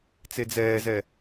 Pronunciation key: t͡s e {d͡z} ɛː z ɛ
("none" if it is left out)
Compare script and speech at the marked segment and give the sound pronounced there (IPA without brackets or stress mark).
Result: d͡z